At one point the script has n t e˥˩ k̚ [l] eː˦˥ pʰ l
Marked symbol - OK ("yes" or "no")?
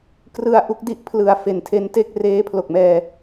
no